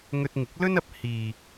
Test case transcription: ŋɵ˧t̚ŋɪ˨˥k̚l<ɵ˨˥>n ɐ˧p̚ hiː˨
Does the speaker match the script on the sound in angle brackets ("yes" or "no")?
no